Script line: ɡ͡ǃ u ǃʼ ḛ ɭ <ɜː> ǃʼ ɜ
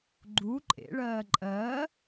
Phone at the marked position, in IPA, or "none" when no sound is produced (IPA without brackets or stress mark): ɜː